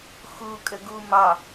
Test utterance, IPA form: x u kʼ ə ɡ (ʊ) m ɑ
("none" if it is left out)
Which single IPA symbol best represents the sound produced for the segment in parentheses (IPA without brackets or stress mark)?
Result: u